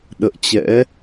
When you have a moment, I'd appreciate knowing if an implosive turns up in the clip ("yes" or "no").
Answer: yes